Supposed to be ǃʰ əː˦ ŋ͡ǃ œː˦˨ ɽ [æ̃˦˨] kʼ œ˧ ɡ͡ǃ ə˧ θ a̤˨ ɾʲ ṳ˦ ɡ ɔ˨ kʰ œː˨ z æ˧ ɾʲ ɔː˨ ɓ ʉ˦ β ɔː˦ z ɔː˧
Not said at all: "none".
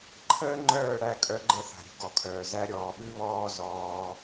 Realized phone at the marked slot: æ˦˨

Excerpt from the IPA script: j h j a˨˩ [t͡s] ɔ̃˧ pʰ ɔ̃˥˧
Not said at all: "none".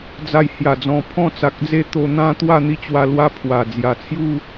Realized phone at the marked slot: d͡z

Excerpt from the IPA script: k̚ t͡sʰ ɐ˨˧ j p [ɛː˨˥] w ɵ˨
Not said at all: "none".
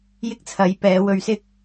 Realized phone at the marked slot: ɛː˨˧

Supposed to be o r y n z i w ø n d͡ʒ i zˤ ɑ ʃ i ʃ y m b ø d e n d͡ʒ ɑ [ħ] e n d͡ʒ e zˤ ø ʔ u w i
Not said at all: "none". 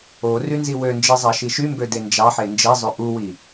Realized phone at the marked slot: ħ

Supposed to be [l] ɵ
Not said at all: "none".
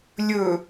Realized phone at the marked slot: lʲ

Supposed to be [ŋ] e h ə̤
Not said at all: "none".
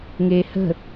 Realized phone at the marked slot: ŋ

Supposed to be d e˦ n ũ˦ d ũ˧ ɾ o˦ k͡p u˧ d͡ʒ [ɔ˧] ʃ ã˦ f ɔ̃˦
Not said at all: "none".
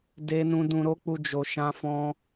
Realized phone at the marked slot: o˧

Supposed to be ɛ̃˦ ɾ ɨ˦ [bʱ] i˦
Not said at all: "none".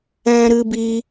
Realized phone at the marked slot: b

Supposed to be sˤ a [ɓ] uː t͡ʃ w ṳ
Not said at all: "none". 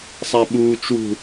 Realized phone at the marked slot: ɓ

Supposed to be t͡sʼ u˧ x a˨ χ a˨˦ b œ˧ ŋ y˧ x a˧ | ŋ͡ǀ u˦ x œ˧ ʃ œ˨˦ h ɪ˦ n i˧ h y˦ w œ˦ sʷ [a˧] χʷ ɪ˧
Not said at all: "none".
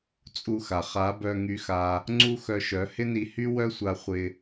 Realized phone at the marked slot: a˧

